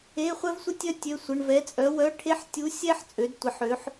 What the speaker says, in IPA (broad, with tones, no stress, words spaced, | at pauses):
e˧˥˧χʷɛ˥vsʷə˥tʲœ˥ tʲø˧˥˧sʷə˧˥˧ɳ vɛ˧˥t͡sʼœ˧˥ wœ˧˥˧ʈʰe˥ħ tʲu˧˥sʲɛ˥ħ t͡sʼø˧˥dtʷɪ˧˥ħø˧˥ħ